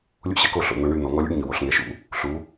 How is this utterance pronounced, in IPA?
lʲ ṵ˦ ɕ ɛ˧ k o˦˨ ɬ o̰˨ n̪ o˧ ɳ y˦˨ n̪ ɔ˨ ŋ ɔ˧ lʲ ṵ˦ ɖ ɲ y˨ w o˦˨ ɬ ŋ ɛ˧ ʃ ṵ˦ | ɬ u˨˦

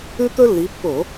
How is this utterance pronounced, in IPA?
ʉ˥ t̪ ɵ˥ lː i˨˦ pː o˧˩˧

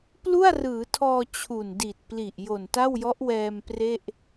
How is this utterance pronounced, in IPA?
p l u˥˩ a̯ r ɯː˩˦ tʰ ɔː˧ t͡ɕʰ u˨˩ n d i˨˩ t̚ p l i˨˩ ʔ j o˨˩ n t a˥˩ w j ɔ˦˥ ʔ w ɛː˧ m p r e˥˩ ʔ

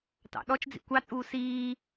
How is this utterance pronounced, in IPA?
t ɑ̰ ɗ ɔ t͡ʃ d͡z ḭ kʷ ɑ t͡sʼ uː s iː

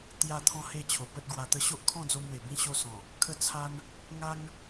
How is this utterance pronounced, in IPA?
t̪ j a˥˧ t̪ʰ ɔ̃˥˧ h e˥˧ t͡ɕʰ o˨˩ p ə˦ t̚ ɡ w a˧ t̪ ə˦ ɕ o˦ ʔ kʰ ɔ̃˥˧ d͡z o˧ m w e˨˩ b ĩ˥˧ ɕ o˦ s ɔ̃˨˩ | kʰ ə˦ t͡sʰ a˦ n | ŋ a˦ ŋ

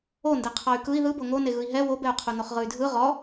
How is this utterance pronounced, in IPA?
o n d ɛ qʰ ɔ y̯ k ɯ i̯ ð ɯ b o ŋ o n e ɣ ɯ i̯ ɦ ɛ w o b ɛ u̯ qʰ u n o χ ʁ ɯ y̯ dʱ ɯ ʁ ɔ

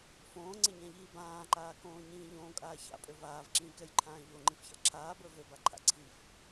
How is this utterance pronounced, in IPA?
f õː ŋ͡ǀ e ɲ ã ʎ iː b ãː ǃ aː k õː ɲ ĩː ʎ õː kʼ aː ç a̰ pʼ ø v aː v ǁ ĩː k ɛ j ǃʰ ãː ʎ o ŋ͡ǃ ĩ f ç a̰ ǁʰ aː b ə˞ v ø b a ǃʰ a̰ ǀʰ i f

